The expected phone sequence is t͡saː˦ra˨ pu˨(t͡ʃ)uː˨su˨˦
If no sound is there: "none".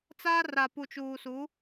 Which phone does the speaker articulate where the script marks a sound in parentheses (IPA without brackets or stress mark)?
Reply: t͡ʃ